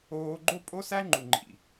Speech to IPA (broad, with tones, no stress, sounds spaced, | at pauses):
oː˦ ɡ͡ǃ o˦ pʼ o˦ s æ˦ ŋ͡ǃ u˨ ŋ͡ǃ ḭ˨